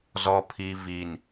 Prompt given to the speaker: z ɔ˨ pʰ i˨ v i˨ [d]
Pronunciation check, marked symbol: incorrect: n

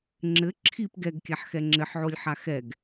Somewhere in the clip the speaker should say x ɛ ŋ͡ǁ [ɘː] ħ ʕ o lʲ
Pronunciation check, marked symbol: incorrect: ɘ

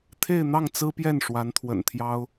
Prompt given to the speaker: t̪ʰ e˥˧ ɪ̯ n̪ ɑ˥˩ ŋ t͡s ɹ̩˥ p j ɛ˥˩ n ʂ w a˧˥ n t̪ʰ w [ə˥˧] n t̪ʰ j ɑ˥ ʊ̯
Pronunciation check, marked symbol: incorrect: ə̰˨˩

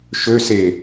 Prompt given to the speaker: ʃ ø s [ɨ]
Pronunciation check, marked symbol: incorrect: e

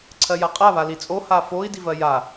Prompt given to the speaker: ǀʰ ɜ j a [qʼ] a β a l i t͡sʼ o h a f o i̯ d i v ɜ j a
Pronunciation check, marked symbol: correct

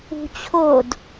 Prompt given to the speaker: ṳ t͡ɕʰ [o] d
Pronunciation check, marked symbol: correct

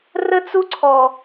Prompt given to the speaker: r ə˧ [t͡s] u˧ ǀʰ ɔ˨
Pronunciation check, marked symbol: correct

